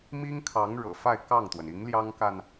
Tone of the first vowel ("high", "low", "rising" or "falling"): high